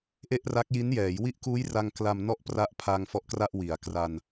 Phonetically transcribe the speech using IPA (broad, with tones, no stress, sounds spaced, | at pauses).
ʔ e˥˩ ʔ r a˦˥ k̚ j i˦˥ n j ɛː˩˦ j w i˦˥ ʔ k uː˦˥ j r a˧ ŋ k l a˧ m n ɔ˥˩ ʔ p r a˦˥ ʔ pʰ a˧ ŋ f ɔ˦˥ ʔ k r a˥˩ ʔ w i˩˦ a̯ k r a˧ n